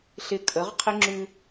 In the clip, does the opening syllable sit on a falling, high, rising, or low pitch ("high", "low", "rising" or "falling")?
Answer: low